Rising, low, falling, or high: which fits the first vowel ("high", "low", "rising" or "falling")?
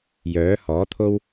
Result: rising